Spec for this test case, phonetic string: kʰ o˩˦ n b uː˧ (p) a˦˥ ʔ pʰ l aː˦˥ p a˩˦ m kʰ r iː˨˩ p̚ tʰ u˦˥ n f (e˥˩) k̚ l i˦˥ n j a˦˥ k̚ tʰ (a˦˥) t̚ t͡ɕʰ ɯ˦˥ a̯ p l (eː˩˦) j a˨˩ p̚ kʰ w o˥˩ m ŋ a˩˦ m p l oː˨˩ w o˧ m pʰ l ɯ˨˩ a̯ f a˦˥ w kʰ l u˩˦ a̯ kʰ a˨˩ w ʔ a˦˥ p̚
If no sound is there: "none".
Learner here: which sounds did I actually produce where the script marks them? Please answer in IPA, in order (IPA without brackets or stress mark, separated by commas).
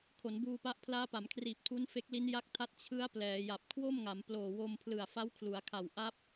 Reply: p, e˦˥, a˦˥, ɛː˩˦